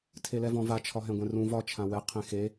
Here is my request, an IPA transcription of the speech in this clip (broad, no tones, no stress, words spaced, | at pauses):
tʰelɛvɔ̃va t͡ʃʰɒɦɛ̃ɡʷɛ̃rũ vɒ t͡ʃʰãwɛ qʰẽxe